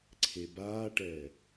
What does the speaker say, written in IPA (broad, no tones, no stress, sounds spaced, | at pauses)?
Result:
ǀʰ e b aː ʈ ɛː